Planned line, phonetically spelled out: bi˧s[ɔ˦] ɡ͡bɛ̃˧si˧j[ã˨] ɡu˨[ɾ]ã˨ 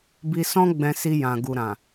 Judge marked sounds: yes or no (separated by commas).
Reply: no, yes, yes